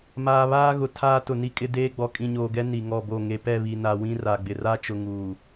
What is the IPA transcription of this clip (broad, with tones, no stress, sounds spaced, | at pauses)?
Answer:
m aː˨ β aː˦ ɣ ʊ˨ tʰ aː˦ t ʊ˨ n i˦ kʼ ɪ˦ d eː˦ ɡ͡b ɔ˨ kʼ ĩ˨ ɲ oː˨ ɡ ɛ˦ n i˨ ŋ ɔ˦˨ b o˦˨ ŋ e˨ p ɛ˦˨ β i˨ n a˨ w ĩ˦ r a˨ ɡ͡b ɪ˨ r a˦ t͡ʃ ʊ˨ ŋ uː˨